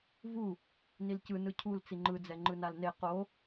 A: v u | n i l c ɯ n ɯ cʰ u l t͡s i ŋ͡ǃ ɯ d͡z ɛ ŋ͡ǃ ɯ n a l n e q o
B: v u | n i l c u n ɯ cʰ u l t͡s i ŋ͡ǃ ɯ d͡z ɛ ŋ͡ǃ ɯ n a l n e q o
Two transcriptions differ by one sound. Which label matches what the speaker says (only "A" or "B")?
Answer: A